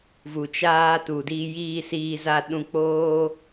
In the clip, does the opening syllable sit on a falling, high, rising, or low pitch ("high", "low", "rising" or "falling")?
low